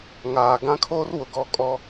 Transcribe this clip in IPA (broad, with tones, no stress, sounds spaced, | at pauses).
ŋ aː˨ ɡ ã˦ kʰ oː˦ r w ʊ˨ ɡ ɔ˦˨ kʼ ɔ˦